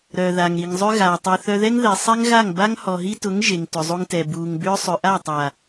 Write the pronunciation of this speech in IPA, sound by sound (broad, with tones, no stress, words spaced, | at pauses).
ɾœ˨ða˨ŋ ɾi˨ŋzˤʏ˦ ɣaː˨tˤɛ˧ θœ˧ðɛ˦ŋ ðɛ˨sˤɛ˦ŋɣa˦˨ŋ ba˦ŋhɔ˨ɦi˦tʊ˨˦ŋ ʒe˨ŋ tʏ˨zˤu˧ŋtɛ˨ buː˨ŋbʏː˦ sˤʏ˨ʔa˦˨tˤa˨